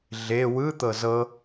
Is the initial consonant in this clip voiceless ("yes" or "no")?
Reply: no